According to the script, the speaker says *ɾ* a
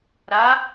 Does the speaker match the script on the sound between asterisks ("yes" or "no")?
yes